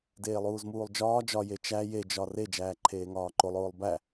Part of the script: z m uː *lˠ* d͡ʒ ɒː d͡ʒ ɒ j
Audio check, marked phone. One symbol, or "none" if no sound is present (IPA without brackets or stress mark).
lˠ